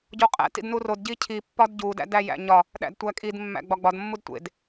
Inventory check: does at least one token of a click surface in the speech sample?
no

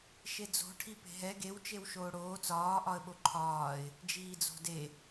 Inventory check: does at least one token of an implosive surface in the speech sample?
yes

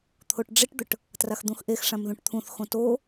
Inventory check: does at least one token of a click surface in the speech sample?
no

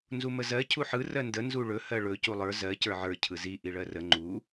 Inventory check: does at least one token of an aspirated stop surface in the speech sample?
yes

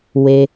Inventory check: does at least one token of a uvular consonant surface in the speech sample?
no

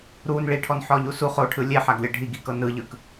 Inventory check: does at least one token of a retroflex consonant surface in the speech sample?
yes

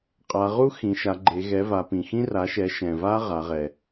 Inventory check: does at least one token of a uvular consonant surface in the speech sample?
yes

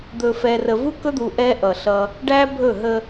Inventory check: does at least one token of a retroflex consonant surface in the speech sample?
yes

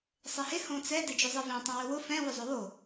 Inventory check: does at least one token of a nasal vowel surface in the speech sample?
yes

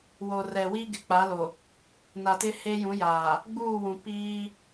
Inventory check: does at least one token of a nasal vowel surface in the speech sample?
yes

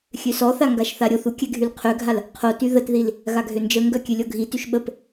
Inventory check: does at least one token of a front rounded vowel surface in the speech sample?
yes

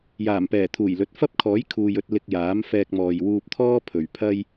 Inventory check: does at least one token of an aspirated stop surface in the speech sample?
yes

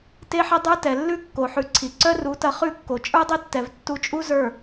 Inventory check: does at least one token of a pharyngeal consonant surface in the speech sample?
yes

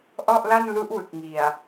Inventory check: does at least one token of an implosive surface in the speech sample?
no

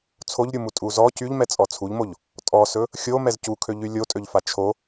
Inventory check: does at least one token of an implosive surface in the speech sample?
no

